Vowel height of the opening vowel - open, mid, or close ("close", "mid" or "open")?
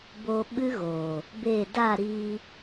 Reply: mid